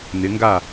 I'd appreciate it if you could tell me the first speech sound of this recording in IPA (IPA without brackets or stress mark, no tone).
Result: n